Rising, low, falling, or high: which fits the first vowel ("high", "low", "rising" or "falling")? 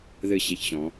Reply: falling